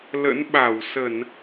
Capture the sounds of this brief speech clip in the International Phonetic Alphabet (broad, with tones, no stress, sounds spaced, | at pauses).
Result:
l ə̰˧˥ n ɓ a˧˩ w s ə˧˩˨ n